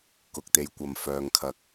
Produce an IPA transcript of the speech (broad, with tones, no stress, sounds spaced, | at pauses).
k ʊ˨ k̚ t̪ e˨˧ j kʷ ɐ˨ m f œː˨ ŋ kʰ ɐ˨˥ k̚